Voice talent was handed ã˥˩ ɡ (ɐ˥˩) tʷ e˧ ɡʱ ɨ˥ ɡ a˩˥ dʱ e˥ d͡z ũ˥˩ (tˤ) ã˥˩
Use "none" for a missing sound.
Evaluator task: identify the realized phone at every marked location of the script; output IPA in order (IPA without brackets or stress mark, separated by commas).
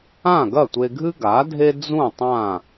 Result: ɐ˥˩, tˤ